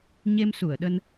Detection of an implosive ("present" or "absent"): present